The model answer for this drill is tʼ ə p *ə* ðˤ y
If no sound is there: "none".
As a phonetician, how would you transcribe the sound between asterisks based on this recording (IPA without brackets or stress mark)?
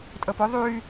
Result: ʊ